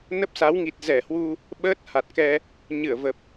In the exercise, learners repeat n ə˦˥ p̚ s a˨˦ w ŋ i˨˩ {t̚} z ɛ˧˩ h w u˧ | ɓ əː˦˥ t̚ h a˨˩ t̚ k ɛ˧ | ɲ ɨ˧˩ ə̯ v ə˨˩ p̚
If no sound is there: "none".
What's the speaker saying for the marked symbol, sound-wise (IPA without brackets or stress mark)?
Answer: t̚